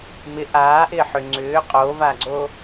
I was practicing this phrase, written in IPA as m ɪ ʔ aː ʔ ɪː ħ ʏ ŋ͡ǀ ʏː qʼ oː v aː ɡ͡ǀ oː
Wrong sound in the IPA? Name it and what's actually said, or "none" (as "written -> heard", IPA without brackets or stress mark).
none